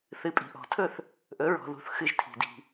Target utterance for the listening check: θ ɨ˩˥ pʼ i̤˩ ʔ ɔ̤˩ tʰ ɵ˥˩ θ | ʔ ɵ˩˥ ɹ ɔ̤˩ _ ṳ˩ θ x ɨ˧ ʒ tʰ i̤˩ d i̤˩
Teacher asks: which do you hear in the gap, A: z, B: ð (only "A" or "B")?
B